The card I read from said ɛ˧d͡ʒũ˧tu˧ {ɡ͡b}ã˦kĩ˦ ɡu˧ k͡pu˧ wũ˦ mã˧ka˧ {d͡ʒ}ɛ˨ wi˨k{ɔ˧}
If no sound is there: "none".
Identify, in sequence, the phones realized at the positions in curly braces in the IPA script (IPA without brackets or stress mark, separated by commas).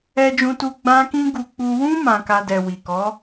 ɡ͡b, d, ɔ˨˦